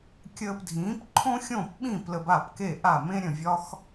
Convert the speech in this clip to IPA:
kʲ əː˧ p dʱ ĩː˩˥ p ǃʰ õ˥ xʲ õ˥˩ p ɓ ĩ˥˩ p l ə˧ b a˥˩ p k e˥˩ ʔ a˥˩ m ẽ˥ ɾʲ ə̃˥˩ vʲ ɒ˥ x

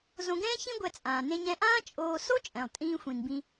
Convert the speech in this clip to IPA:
z õ˧ ɡ ɛ̃ː˥ ç ĩ˥ ɡʷ ɛ˧ t͡sʼ ãː˩ n ẽ˧ ɲ ɛ̃˧ ʔ ãː˥ t͡ʃʼ oː˧ s o˥ t͡ʃʼ ɛ̃˩ lˠ tʼ ĩː˧ xʷ ĩ˩ n b ĩ˧

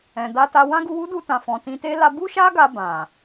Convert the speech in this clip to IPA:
ɛ̃˨ d a˧ t a˧ w ã˦ ɡ u˧ w u˦ d u˧ t ã˨ f ɔ̃˨ t ĩ˧ t e˦ l a˧ b u˦ ʃ a˦ ɡ a˧ b ã˨

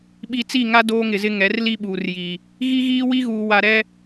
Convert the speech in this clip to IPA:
ɓ i˨ t͡s i˦˨ ŋ a˦ d oː˦ ŋ ɪ˨ z ɪ˦ ŋ ɛ˨˦ r l i˦ ɓ uː˨ r j i˨ | ɣ i˦ ɣ iː˦ w i˦ ɣ uː˨ w a˨ ɾ ɛ˦

